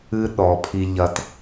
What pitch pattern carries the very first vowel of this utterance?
high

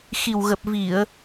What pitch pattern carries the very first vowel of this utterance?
low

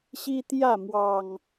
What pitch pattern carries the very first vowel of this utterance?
high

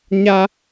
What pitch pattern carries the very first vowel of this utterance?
high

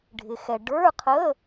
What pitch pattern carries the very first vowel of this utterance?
low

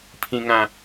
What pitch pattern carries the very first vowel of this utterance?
low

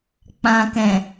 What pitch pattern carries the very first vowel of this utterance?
low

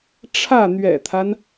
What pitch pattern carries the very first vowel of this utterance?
falling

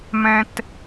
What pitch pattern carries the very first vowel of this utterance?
high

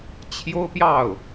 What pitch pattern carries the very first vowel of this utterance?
high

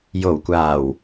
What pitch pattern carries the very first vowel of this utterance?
low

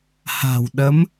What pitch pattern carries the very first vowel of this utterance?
low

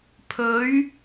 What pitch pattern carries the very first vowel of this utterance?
rising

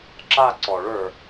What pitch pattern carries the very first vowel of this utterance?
falling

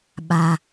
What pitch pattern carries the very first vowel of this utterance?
low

